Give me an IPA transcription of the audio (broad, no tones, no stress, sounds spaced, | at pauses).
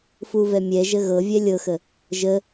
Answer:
f u v ɛ mʲ ɛ ʒ ə ɣ ɤ vʲ ɛ lʲ ɤ x ə | ʒ ə